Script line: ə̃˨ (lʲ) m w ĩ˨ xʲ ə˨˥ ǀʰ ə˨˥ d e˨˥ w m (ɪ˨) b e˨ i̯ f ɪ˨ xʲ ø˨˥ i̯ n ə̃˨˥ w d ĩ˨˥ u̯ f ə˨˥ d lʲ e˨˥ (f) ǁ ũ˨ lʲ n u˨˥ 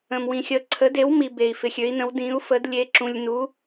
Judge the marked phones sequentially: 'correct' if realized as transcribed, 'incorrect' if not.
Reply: incorrect: none, incorrect: i˨, incorrect: none

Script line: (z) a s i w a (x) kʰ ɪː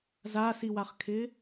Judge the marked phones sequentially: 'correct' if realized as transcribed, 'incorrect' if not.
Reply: correct, incorrect: χ

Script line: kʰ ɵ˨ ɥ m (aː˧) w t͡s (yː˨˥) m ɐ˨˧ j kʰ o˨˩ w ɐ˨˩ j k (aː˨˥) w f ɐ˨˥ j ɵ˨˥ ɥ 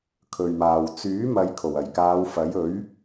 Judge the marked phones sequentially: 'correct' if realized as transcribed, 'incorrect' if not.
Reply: incorrect: aː˨, correct, incorrect: aː˨˧

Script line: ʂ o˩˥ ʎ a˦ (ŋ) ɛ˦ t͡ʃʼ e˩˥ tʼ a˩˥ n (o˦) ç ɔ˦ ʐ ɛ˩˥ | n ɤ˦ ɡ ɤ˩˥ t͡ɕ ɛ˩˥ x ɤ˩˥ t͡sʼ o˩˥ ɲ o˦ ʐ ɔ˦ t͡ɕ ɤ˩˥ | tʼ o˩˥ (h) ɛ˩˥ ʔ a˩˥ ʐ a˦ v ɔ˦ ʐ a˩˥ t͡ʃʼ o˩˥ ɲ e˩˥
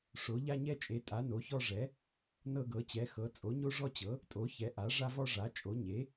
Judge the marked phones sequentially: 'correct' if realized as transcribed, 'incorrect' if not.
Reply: incorrect: ɲ, incorrect: o˩˥, incorrect: ç

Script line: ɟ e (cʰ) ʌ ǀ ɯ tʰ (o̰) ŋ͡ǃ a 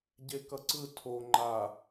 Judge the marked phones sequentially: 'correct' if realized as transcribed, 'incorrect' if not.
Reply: incorrect: k, incorrect: o

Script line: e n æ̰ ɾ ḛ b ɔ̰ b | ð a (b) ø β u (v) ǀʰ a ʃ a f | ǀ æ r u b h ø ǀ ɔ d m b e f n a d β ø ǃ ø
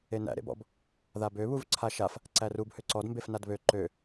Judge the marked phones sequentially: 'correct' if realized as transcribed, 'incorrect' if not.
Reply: correct, correct

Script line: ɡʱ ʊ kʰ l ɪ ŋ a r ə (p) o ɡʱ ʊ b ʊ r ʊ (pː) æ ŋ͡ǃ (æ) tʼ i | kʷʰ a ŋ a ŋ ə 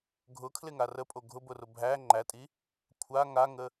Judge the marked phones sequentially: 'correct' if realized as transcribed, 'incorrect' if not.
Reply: incorrect: pʼ, incorrect: bʱ, correct

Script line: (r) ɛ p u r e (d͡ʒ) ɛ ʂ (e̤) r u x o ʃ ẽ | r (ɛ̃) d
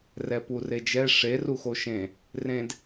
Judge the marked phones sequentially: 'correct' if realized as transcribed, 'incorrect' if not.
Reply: correct, correct, incorrect: e, incorrect: ẽ

